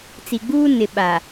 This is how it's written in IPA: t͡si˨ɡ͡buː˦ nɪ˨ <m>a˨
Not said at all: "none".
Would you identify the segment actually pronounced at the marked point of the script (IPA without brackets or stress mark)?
ɓ